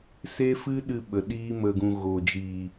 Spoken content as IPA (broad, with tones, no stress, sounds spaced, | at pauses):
s e˦ f ɨ˦ ɗ ɨ˧ ɓ ə˨ ɗ iː˦ m ə˧ ɡ ũ˧ ɣ o˨ d͡ʒ iː˨